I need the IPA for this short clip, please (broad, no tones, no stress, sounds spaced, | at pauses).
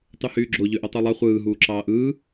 tˤ y h yː ɡ͡ǁ o ʎ ø ʔ o tˤ u lˠ ɑ χʷ ɯː ɦ uː ǁ ɑː ʔ ɯː